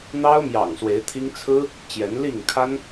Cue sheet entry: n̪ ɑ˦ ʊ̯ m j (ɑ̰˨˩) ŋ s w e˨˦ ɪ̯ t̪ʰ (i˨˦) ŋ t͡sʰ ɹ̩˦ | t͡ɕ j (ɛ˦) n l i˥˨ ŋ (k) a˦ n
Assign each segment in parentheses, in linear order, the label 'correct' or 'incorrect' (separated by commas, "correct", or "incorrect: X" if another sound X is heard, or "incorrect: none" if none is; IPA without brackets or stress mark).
correct, incorrect: i˦, incorrect: ɛ˨˦, incorrect: kʰ